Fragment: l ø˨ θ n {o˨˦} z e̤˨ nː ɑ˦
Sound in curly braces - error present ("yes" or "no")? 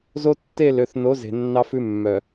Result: no